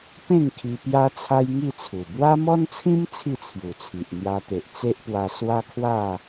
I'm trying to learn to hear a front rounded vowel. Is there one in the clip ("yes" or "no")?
no